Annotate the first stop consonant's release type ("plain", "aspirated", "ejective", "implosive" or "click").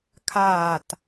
aspirated